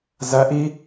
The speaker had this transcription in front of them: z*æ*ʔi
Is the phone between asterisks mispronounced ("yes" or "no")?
no